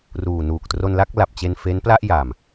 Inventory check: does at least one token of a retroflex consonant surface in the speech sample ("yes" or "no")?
no